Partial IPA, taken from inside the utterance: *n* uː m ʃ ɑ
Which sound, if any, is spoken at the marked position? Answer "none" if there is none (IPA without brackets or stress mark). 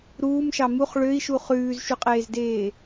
ɾ